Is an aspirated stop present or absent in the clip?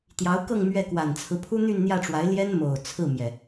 present